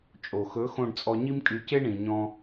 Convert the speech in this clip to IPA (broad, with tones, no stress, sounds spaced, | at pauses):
t͡ʃʼ o˨ x ɵ˨˦ x õ˧ ɖ t͡sʼ ɔ˧ ɲ i˦ m kʼ y˧ c e˦ ɳ ĩ˨ ɲ ɔ̃˦